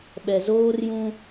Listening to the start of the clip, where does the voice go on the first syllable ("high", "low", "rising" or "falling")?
low